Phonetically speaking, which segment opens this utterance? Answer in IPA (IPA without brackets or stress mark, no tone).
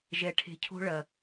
ʒ